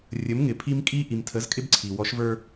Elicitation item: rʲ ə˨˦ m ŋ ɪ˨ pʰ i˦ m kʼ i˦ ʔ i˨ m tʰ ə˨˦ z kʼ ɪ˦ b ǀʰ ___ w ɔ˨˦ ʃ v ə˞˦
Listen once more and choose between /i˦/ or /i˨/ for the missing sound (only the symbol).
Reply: i˨